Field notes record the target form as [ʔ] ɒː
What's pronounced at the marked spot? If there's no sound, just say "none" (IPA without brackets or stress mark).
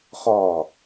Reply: χ